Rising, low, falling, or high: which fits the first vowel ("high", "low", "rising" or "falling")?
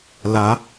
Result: rising